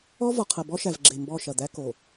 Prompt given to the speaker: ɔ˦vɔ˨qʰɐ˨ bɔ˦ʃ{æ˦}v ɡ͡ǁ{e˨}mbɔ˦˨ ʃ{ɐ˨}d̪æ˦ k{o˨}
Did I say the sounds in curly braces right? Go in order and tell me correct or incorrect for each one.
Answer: incorrect: æ˨, correct, correct, correct

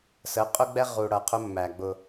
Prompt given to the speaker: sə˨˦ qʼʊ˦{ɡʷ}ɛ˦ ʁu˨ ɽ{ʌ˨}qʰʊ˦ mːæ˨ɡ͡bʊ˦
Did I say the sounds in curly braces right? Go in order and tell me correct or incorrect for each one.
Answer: incorrect: ɡ͡b, correct

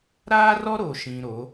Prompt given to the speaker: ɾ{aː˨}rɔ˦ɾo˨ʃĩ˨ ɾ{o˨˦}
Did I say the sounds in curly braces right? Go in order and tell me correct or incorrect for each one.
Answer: incorrect: aː˦, correct

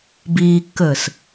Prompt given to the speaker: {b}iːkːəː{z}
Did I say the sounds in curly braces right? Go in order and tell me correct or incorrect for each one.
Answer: correct, incorrect: s

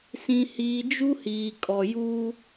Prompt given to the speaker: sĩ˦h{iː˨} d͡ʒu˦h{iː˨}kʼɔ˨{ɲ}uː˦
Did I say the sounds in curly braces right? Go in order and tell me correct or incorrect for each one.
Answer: incorrect: iː˦, correct, incorrect: j

